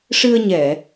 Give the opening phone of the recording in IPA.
ʂ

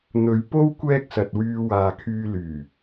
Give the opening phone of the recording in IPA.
n̪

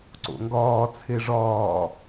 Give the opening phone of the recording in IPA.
ǀ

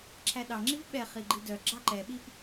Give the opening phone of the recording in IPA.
ǁʰ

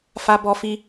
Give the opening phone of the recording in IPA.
f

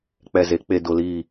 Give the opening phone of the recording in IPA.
k͡p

